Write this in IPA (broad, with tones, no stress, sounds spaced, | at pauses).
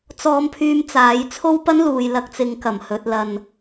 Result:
t͡s ɔː˧ m pʰ yː˧ m t͡s aː˨˥ j t͡sʰ o˥ w p ɐ˥ n l uː˨ j l ɐ˧ k̚ t͡s ɪ˨˧ ŋ k ɐ˨˩ m h ɵ˨ t̚ l ɐ˨ n